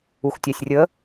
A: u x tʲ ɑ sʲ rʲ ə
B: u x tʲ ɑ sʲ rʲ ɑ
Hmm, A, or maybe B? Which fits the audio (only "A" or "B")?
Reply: A